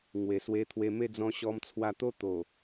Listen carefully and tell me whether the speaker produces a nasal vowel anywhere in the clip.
yes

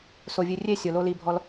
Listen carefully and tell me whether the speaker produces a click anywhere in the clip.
no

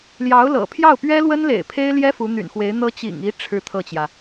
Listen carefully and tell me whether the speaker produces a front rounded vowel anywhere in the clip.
yes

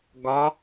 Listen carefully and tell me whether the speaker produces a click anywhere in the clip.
no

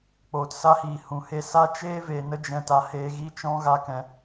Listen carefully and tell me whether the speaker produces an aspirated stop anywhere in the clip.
no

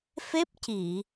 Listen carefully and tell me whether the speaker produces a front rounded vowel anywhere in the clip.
no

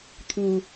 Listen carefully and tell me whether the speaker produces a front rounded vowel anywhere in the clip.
no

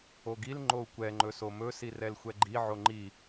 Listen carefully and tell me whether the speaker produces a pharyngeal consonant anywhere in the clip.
yes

